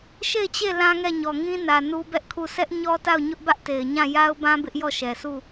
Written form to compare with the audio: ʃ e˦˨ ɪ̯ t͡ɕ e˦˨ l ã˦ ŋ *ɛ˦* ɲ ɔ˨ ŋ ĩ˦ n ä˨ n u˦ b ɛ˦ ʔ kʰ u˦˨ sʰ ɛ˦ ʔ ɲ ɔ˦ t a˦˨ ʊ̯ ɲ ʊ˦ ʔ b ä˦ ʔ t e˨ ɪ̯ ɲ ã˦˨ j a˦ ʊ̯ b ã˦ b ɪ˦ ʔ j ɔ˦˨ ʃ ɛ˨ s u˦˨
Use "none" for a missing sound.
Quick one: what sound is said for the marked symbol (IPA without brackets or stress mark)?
ɛ˦˨